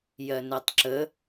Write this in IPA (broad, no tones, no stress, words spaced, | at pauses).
jɜnɛtˤǁə